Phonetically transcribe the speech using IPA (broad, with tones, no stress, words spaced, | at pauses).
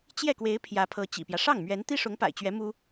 t͡ɕjɛ˥˩kwe˧˥ɪ̯ pʰjä˧˥pʰɤ˧˥t͡ɕḭ˨˩pjä˦ ʂɑ˥˩ŋmɥɛ˧˥n t̪i˥ʂʊ˧˥ŋpa̰˨˩ɪ̯t͡ɕɥɛ˧˥ mu˥